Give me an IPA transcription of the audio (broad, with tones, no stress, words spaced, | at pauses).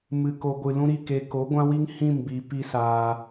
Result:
mɨ˨ko˨ɡʷɨ˨ lũ˦ɾi˦˨ke˧ ko˨˦ɡʷã˦wi˦ŋ hĩ˦˨mbi˨ pi˦saː˧